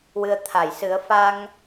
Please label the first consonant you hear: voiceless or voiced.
voiced